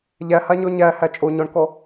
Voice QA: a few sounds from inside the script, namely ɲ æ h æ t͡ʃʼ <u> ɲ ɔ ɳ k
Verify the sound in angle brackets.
incorrect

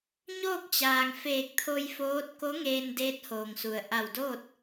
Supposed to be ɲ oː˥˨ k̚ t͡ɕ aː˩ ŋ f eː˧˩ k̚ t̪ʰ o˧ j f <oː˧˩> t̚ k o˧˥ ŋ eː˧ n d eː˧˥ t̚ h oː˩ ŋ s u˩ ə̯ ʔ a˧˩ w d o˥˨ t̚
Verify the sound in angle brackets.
incorrect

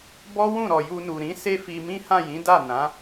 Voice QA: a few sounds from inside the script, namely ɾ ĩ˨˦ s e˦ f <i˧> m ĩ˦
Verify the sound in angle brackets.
correct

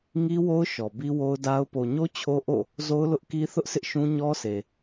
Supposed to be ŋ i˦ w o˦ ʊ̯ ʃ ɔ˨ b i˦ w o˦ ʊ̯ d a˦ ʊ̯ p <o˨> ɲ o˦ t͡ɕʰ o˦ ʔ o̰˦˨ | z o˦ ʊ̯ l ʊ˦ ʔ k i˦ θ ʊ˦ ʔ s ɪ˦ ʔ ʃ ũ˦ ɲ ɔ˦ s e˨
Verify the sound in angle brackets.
correct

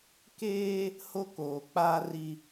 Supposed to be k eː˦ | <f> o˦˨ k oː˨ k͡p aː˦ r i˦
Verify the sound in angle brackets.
incorrect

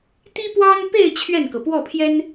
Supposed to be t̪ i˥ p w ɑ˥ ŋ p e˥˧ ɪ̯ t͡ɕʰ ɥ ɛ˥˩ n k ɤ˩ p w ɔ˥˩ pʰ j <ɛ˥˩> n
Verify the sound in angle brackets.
incorrect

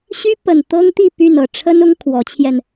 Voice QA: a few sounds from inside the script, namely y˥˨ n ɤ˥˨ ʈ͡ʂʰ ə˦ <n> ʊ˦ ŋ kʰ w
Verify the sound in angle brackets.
correct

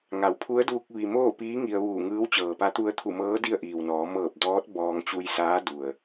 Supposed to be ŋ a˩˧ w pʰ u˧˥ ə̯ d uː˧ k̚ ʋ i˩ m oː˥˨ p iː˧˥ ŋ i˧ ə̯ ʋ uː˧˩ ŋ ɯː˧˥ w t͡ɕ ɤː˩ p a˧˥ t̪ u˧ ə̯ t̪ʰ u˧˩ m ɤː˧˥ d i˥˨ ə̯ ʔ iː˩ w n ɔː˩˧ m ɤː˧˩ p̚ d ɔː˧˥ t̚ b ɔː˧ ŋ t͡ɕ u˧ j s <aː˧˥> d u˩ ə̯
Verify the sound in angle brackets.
correct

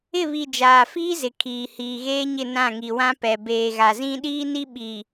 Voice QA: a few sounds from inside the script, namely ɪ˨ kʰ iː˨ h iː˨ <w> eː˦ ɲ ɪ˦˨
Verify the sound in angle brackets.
incorrect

